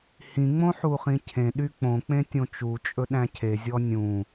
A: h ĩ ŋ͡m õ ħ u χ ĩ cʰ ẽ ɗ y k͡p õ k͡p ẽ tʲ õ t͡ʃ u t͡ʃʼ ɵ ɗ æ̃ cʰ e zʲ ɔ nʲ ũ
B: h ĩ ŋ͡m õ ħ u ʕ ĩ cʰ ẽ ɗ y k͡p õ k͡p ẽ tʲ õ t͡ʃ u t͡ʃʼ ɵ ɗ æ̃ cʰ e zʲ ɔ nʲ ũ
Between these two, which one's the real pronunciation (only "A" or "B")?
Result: A